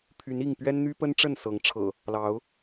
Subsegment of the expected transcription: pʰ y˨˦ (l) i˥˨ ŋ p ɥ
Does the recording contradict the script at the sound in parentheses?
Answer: yes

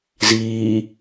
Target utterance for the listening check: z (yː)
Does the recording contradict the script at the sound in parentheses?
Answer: yes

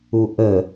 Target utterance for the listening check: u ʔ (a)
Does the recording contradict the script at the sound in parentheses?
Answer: yes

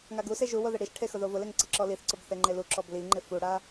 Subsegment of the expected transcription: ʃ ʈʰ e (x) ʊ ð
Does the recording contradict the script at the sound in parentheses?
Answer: no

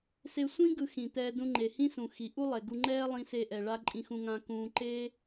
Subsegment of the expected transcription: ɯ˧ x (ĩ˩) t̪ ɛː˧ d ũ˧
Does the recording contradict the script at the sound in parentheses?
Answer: no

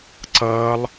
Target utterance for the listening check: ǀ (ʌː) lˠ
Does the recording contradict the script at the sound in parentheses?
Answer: no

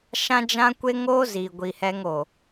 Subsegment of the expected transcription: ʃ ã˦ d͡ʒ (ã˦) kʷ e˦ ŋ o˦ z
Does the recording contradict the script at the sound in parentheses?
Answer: no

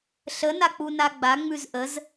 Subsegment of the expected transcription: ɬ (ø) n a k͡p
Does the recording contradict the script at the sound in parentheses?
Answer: yes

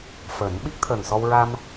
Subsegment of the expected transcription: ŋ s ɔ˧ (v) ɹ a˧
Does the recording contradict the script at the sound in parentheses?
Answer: yes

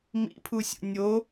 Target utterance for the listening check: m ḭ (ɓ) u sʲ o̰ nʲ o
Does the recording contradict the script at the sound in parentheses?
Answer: yes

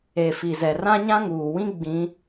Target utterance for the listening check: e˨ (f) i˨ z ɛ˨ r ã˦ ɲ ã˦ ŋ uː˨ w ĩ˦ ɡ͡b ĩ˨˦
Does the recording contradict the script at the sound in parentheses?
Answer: no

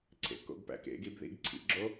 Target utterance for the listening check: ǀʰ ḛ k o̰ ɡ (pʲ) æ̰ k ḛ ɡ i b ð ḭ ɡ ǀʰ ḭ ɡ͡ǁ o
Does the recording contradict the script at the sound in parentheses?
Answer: yes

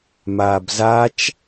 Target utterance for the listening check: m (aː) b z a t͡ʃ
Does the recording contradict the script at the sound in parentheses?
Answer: no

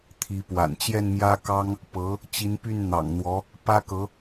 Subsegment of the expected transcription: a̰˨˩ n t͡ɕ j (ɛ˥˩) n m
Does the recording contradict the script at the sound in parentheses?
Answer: no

